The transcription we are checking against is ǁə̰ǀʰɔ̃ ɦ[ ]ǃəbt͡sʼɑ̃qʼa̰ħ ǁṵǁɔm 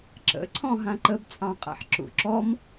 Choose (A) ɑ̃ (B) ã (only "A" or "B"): B